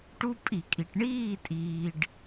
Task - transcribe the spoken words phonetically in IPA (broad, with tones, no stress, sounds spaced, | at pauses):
ʈ u˦ pʼ i˧˩˧ kʼ i˩ ʈ ɳ iː˥˨ tʼ iː˩ ɖ